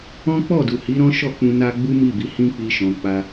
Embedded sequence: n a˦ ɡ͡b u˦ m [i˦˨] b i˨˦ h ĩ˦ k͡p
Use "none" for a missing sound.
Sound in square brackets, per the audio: i˦˨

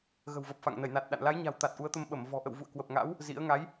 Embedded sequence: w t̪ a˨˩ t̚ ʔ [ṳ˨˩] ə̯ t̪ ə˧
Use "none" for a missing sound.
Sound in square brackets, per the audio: u˨˦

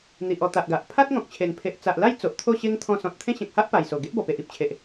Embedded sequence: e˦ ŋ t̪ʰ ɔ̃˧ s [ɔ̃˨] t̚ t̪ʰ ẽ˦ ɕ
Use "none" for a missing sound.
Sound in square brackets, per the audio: ɔ̃˨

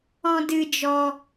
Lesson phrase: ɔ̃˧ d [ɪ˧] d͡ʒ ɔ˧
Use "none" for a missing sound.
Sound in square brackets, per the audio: ɨ˧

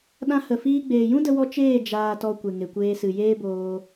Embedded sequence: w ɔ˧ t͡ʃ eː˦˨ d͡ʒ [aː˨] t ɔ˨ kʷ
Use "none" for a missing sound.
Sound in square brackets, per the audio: aː˨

